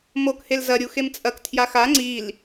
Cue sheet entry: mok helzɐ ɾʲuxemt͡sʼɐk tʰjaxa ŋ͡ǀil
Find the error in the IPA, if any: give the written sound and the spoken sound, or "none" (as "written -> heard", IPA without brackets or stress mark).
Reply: none